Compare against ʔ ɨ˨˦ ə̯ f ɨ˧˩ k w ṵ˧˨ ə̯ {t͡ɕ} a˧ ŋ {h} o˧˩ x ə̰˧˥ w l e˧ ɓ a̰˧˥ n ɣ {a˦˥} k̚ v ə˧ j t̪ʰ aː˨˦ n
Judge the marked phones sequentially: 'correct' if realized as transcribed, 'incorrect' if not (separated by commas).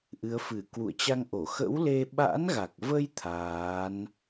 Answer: correct, incorrect, incorrect